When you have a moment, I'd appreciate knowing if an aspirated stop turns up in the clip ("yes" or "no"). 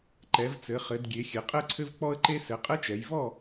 yes